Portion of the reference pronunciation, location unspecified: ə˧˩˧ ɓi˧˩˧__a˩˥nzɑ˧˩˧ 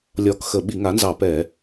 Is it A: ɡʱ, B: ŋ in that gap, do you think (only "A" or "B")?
B